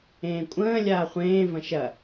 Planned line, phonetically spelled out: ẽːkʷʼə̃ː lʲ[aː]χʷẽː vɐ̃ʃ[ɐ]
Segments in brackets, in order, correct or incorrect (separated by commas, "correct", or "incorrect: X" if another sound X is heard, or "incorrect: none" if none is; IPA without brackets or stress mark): correct, correct